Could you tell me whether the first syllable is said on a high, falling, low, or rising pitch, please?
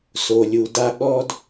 low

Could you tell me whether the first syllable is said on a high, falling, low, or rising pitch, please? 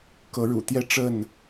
rising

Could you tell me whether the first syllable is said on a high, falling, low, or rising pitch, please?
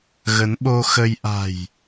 rising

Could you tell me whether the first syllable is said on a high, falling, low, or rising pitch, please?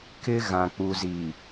high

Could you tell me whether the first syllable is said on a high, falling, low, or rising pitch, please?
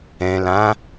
low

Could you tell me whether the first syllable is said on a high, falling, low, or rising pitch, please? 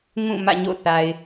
falling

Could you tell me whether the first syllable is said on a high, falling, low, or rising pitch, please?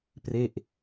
falling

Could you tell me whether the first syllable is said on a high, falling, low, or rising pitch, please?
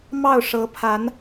falling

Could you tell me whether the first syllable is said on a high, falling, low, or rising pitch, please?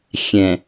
low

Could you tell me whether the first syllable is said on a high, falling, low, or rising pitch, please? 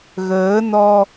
rising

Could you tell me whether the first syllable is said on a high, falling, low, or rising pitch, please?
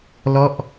falling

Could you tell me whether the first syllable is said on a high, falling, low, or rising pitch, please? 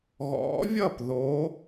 rising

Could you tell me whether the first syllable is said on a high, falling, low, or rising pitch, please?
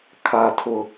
high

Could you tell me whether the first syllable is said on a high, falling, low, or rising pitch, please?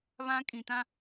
high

